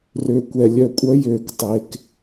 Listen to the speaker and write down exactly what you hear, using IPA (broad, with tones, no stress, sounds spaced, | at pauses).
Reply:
r ø˨ kʷ ɛ˨ lʲ œ˨ kʷʼ œ˦ j øː˨ k tˤ e˨ k